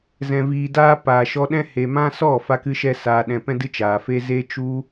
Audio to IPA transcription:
z ɛ̃˨ v iː˨ d aː˧ p aː˨ ʃ ɔ˧ ɗ ɛ̃˦ h e˨ m ã˦ s ɔ˦˨ f a˦ k ɨ˦ ʃ ɛ˦ s aː˧ ɗ ɛ̃˧ p ɛ̃˦ d ɨ˦ t͡ʃ aː˨ f e˦ z e˦ t͡ʃ u˦

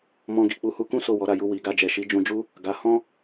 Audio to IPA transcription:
m ɔ̃˧ ɡ i˨ k͡p u˧ h u˧ k ũ˦ s o˦˨ w ɔ˨˦ ɾ a˦˨ j u˧ w i˨ ɡ a˧ d͡ʒ ɛ˨ ʃ i˨˦ d͡ʒ ũ˧ d͡ʒ u˦ | ɡ a˧ h ɔ̃˦

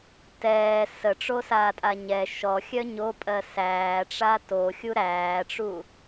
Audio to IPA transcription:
t ɛː s ə ʈ͡ʂ o s aː tʼ a ɲ ɛ ʃ ɔ xʲ œ ɲ o pʼ ɜ s æː ʈ͡ʂ a t o xʲ u ɾ æː ʈ͡ʂ u

